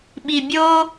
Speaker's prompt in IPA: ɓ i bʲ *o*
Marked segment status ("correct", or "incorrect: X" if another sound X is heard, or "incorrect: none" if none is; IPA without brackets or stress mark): correct